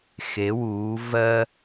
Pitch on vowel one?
rising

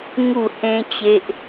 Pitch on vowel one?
falling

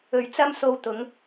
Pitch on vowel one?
low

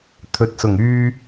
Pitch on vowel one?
low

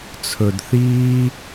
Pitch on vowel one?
low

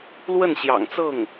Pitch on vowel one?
falling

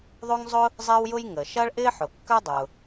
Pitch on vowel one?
high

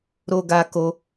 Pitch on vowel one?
high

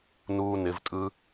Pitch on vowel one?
high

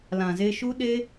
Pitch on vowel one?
low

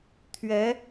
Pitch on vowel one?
rising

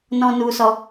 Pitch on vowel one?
high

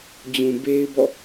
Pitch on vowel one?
low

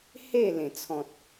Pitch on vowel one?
falling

